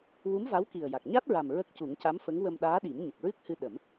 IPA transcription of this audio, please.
w u˧˥ m v a˧˥ w k i˨˩ ə̯ j a˨˩ k̚ ɲ a˦˥ t̚ ɹ a˨˩ m ɹ ə˦˥ k̚ c u˨˩˦ ŋ c a˧˥ m f ə˧˥ ŋ w ə˧ m ɗ aː˧˥ ɗ i˨˩˦ m ɲ ə˨˩ k̚ ɹ ɨ˦˥ k̚ h ɨ˧ ɗ ə˨˩˦ m

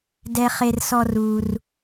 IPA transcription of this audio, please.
d ɛ˨ χ e˨ r s ɔ˨ r u˩ r

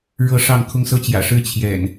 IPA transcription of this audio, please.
ɻ ɤ˥˨ ʂ ɑ˥˨ ŋ kʰ ʊ˦ ŋ s ɤ˦ t͡ɕ j ä̰˨˩ ʂ ɻ̩˦ t͡ɕʰ j ɛ̰˨˩ n

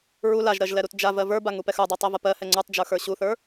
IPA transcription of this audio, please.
ɹ u l a ʒ ɾ ɜ ʒ l ɛ ɾ u t d͡ʒ a v ɜ v ə˞ b a ŋ u p ɛ x ə˞ dˤ ɜ tˤ ɛ v ɐ p ɜ h ɛ ŋ͡ǀ ə˞ tˤ d͡ʒ ə˞ x ə˞ ɕ u θ ə˞

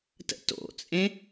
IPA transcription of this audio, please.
t ə̰ t o̰ t͡sʼ ẽ

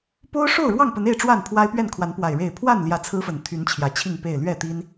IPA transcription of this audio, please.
p o˦ ʊ̯ ʂ o˥˨ ʊ̯ ɻ w ɑ˥˨ ŋ p ə˨˦ n e˥˨ ɪ̯ ʈ͡ʂ w a˥˨ n pʰ w a˦ ɪ̯ p ɥ ɛ˥˨ n kʰ w a˨˦ n p w a˨˩ ɪ̯ ɻ e˥˨ ɪ̯ pʰ w a˥˨ n l j ä˨˦ t͡sʰ ɹ̩˦ f ə˨˩ n t̪ʰ y˨˦ n t͡ɕʰ j ä˨˦ t͡ɕʰ i˥˨ ŋ p e˥˨ ɪ̯ l ɥ ɛ˥˨ t̪ i˦ n

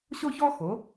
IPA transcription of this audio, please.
ɕ o˥ ç ɔ˥ x o˩˥

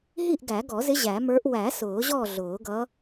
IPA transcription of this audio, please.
ɦ i˥˨ ʔ ɡ æ˨˩˦ ɡ ɔ˨˩˦ z ɪ˧˥ ʑ æ˨˩˦ m ə˞˧˥ ʔ w æ˨˩˦ s ʊː˨˩˦ ʑ ɔ˥˨ ɮ ʊː˨˩˦ ɡ ʌ˧˥

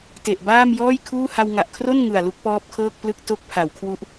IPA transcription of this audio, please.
t e˨˩ ʔ b aː˥˩ m j ɔː˥˩ j kʰ uː˥˩ h a˧ w ŋ a˨˩ ʔ kʰ r o˥˩ n ŋ ɯ˨˩ a̯ l u˦˥ k̚ p ɔː˦˥ p̚ kʰ ɤː˥˩ k̚ p l ɯ˥˩ k̚ t o˦˥ k̚ pʰ a˩˦ w kʰ w u˦˥ ʔ

